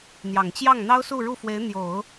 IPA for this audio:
n̪ j ɑ˨˩ ŋ t͡ɕ j ɑ˥˩ ŋ n̪ ɑ˥ ʊ̯ s u˥˧ ɻ u˥˩ f w e˧˥ ɪ̯ n̪ j o˨˩˦ ʊ̯

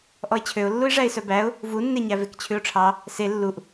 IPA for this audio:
ʔ ɔ ɪ̯ t͡ɕʰ ø ʊ̯ lː u ɪ̯ ʐ æ ɪ̯ s œ b æ ʊ̯ | v u nː e ɲ æ v e k t͡ɕʰ ʉ ʊ̯ ʈ͡ʂʰ ɑ | s e lː u ʔ

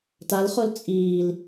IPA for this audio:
t a l χ o l t͡sʼ iː l

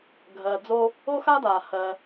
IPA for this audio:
ɡʱ ɜː˨ d͡z o˥ | o˥ x a˥ d aː˩ h ɜ˨

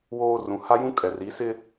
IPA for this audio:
w oː˦ r ũ˨ h a˦ j ũ˦ kʼ ɛ˨ r i˨˦ s ɪ˦

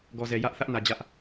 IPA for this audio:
ɡ ɔ˨ z ɛ˨ j ä˦ ʔ θ ä˦ ʔ n ä˨ d͡ʑ ä˦ ʔ

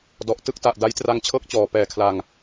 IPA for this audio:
d ɔ˨˩ ʔ t ɯ˥˩ k̚ t a˨˩ ʔ d a˦˥ j t r a˧ ŋ t͡ɕʰ ɤː˥˩ k̚ t͡ɕ ɔː˨˩ p ɛː˨˩ kʰ l a˨˩ ŋ

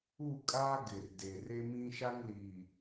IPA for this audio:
u˦˨ kʼ aː˦ ɡ ɪ˨ r d e˨ r e˦ m ĩ˦ ʃ a˦ ŋ l iː˨

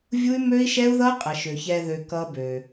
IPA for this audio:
vʲ u˦ y̯ m ø˦ i̯ ʃ ɛ˦ u̯ ð ʌ˦ qʼ ə˨ ʃ ø˨ ç ɛ˧ ð ø˧ k ʌ˦ b ø˧

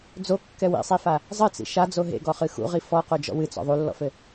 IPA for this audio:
d͡z o kː ɛ w ḭ sˤ i f a | zˤ ɘ t͡s ḭ ʃ a d͡z o ɦ ḛ ɡ ɔ χ ɨ x ṵ ʁ i f ɔ q o d͡ʒ ɔ̰ w ɨ t͡s ɔ̰ ðˤ u lː ɔ̰ f ɘ

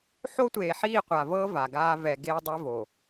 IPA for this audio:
ħ o˦ tʷ eː˨ ħ iː˦˨ qʷ a˨ v ɤː˦ v a˨ ɡ aː˦ v ɛ˨ ɡ eː˦ dˤ e˦ v o˨

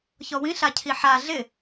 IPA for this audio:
ç ɔ w ĩ ɬ a cʰ i ħ a ɮ ɪ

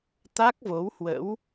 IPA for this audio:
t̪ a˦˥ k̚ v o˨˦ w h w ə̰˧˥ w

